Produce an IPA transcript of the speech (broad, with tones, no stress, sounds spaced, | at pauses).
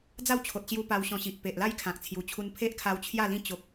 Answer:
d͡z a˥˧ w t͡ɕʰ o˨ t̚ ɕ j u˧ p a˧ w ɕ ɔ̃˧ ɕ i˨ ʔ p e˨ ʔ l a˥˧ j kʰ ã˨ k̚ t͡sʰ j u˨˩ t͡ɕʰ u˧ n pʰ e˦ ʔ kʰ a˧ w t͡ɕʰ j a˥˧ l ĩ˥˧ t͡ɕ o˦ k̚